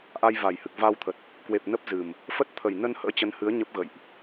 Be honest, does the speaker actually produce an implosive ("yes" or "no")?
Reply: no